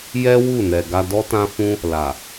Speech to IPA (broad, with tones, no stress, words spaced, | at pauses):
jɛ˦ wu˦˨nɛ˨ɡa˧ dɔ˦tã˦fũ˦ | la˨